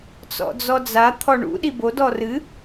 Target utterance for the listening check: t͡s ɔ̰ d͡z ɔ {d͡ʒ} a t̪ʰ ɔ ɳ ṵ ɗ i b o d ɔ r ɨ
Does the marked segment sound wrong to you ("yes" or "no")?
yes